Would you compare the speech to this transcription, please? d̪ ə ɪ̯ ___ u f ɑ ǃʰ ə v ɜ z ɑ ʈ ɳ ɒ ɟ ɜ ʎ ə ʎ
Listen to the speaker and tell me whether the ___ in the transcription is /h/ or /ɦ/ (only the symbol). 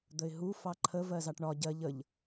ɦ